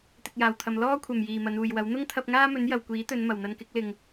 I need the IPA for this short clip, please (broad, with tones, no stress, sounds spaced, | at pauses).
t̪ ɪ˨ k̚ j aː˨˩ w t̪ʰ ɐ˨ m l ɔː˥ kʷʰ ɐ˨˩ m j iː˨˩ m ɐ˨˧ n uː˨ j w ɐ˨˥ w n̪ ʊ˥ ŋ t̪ʰ ɐ˧ p̚ ŋ aː˥ m ɵ˨˥ n j ɐ˨ w kʷ iː˨˥ t̪ ɵ˨˧ n m ɐ˨˩ w n̪ ɐ˧ n k ɪ˨˥ k̚ l ɪ˨ ŋ